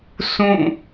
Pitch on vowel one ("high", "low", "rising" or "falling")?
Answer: falling